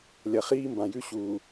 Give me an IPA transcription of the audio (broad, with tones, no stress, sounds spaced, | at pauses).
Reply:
lʲ ɐ˨ χ iː˦ m b ã˨ j ʉ˦ ɕ uː˨